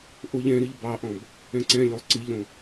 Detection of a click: present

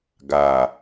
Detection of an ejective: absent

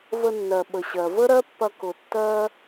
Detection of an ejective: absent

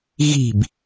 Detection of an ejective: absent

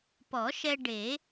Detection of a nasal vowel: absent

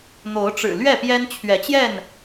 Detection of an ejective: absent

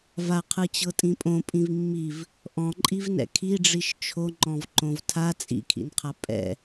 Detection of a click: present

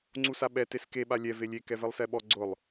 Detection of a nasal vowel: absent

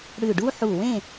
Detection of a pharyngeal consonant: present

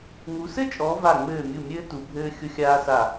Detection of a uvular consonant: absent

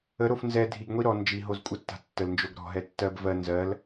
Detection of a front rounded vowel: absent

